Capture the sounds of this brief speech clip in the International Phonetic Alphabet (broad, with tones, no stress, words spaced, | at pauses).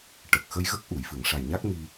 ʈə˨˩k̚ xə˧jɣə˦˥k̚ʔu˨˩˨j fɨ˨˩˨ŋʂa˨˩jɲa˦˥k̚mi˧